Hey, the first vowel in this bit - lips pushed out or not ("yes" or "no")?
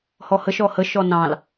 yes